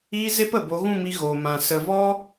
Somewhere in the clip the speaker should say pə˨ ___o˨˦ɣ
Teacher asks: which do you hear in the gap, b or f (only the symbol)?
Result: b